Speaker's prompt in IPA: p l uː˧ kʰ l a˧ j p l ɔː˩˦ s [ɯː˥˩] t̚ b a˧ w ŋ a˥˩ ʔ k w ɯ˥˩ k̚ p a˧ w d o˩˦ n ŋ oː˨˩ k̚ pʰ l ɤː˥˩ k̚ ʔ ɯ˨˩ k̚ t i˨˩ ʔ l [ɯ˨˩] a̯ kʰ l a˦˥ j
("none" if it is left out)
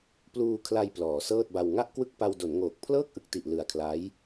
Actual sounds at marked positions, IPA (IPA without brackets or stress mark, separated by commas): ɤː˥˩, ɯ˨˩